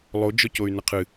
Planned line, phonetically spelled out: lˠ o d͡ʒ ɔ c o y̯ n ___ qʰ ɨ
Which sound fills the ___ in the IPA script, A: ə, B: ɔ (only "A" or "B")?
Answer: A